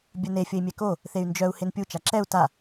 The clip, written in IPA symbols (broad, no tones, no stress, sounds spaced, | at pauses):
bʲ œ n e fʲ ə i̯ mʲ ɛ k o | θ e y̯ n d͡ʒ œ u̯ h e n pʲ u t͡ʃ a ǁ ɛ u̯ t a